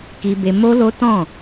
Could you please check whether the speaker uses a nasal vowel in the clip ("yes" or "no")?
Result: yes